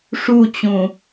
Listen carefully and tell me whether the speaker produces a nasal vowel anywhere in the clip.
yes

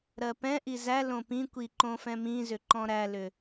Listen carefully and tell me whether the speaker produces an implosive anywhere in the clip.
no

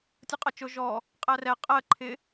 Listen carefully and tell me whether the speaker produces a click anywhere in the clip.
yes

